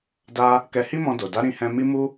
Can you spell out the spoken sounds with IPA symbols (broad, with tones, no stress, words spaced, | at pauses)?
da˧ | kɛ˧ hi˦mɔ̃˧do˨ da˨˦ ɾĩ˧hɛ̃˧ mi˦ mu˦